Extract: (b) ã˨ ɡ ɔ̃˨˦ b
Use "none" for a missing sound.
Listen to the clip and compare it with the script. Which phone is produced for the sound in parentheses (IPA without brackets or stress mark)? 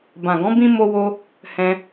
b